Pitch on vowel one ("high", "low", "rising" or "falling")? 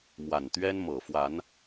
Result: low